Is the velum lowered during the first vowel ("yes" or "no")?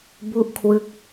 no